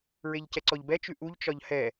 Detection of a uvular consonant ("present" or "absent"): absent